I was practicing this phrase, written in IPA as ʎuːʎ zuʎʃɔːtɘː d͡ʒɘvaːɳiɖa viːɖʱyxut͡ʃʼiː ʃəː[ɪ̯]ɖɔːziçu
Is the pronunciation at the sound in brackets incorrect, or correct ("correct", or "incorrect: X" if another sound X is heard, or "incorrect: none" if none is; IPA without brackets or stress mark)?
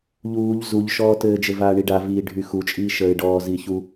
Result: correct